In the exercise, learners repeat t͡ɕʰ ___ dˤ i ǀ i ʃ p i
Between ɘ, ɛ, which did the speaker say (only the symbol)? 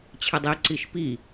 ɘ